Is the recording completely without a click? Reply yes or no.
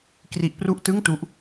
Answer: yes